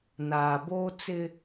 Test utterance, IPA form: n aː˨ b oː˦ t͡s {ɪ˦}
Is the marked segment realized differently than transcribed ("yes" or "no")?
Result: no